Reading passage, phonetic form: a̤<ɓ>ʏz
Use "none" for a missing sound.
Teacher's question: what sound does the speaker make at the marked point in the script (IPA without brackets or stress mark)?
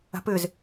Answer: p